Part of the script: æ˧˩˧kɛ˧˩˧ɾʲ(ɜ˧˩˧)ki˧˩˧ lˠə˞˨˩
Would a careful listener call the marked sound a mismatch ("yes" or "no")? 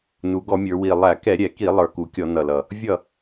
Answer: yes